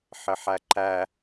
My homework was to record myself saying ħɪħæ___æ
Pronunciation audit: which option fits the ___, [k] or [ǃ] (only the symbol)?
ǃ